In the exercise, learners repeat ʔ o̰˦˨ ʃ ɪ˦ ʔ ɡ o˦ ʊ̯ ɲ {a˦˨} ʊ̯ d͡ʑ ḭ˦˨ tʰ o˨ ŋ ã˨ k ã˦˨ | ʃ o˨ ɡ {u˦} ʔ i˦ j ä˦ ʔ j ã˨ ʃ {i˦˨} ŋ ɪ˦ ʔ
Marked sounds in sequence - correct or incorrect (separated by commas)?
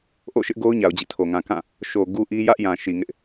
incorrect, correct, incorrect